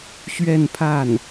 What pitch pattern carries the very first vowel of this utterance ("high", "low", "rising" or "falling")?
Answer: falling